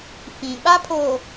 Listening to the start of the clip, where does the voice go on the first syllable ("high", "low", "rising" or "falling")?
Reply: low